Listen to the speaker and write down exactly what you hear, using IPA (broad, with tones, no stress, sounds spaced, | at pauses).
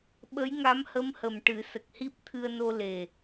ɓ ə˧˥ j ŋ a˧˥ m h ə˧˥ m h ə˨˩ m ʈ ɨ˨˩˦ s ə˨˩ k̚ h i˦˥ p̚ t̪ʰ ɨ˧ ə̯ n o˧ l e˨˩